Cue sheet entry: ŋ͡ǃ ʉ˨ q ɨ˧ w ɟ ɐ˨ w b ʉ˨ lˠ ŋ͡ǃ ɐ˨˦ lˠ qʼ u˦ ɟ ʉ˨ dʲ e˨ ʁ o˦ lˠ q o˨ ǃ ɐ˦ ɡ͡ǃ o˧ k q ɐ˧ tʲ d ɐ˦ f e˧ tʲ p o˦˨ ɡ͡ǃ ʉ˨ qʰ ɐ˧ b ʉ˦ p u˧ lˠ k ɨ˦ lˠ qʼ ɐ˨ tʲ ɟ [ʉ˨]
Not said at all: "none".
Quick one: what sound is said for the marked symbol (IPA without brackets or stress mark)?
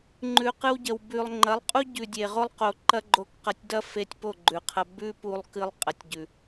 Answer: ʉ˨